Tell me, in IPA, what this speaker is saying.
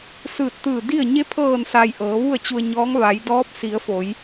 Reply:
s ɯː˧˩ t̚ t̪ ɯː˧˩ d i˥˨ ə̯ ɲ e˧˥ pʰ ɤː˧˩ n s a˩ j ʔ ɤː˩˧ ʋ u˥˨ ə̯ t͡ɕ u˧ ə̯ ɲ ɔː˧˥ ŋ ʋ a˩˧ j d ɔː˧˥ p̚ s i˩˧ ə̯ f o˩˧ j

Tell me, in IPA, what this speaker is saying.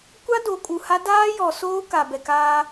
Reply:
kʷ a˦ d o˨˦ kʼ u˨ h a˦ d aː˦ j ɔ˨ s oː˦ k a˨ b ɛ˨ k aː˦

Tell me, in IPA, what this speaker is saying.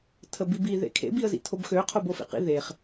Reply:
tʰ ə b i b i ð ḛ kʰ ḛ b i ə̯ z ḭ tʰ o b x ø qʰ o b o f ḭ q ḭ ð e χ

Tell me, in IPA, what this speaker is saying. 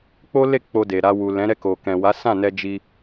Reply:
k͡p o˦ l e˦˨ k͡p o˧ d e˨ ɾ a˧ w u˨ l ɛ̃˨˦ ɾ ɛ˦˨ k o˨ k ɛ̃˨ w a˨˦ s ã˦˨ n ɛ˧ d͡ʒ i˧

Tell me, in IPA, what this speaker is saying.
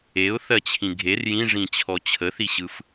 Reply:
e ʊ̯ θ ɜ t͡ɕʰ ĩ ɡʱ e r j ĩ ʐ ĩ t͡ɕʰ ɔ t͡ɕʰ ə θ i ɕ ɯ f

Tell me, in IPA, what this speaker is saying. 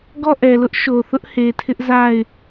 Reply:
ɡ ɔ˦˨ ʔ ɛ˨ l ʊ˦ ʔ ʃ o˨ θ ʊ˦ ʔ h e˨ tʰ ɪ˦ ʔ z a˦˨ ɪ̯

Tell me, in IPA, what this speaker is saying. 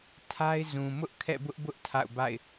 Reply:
tʰ a˦ ɪ̯ z ũ˨ m ʊ˦ ʔ kʰ ɛ̰˦˨ b ʊ˦ ʔ b ʊ˦ ʔ tʰ a̰˦˨ ʊ̯ b a̰˦˨ ɪ̯

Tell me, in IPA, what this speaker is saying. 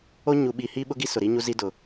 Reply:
o˦ ɲ u˨ ɓ i˨ h i˦ ɓ ʊ˦ ɡ i˦ s ʊ˨ ɾ i˦ ɲ u˦ z i˦ d ʊ˨

